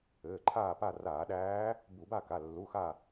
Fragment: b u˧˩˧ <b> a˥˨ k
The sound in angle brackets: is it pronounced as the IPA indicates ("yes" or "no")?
yes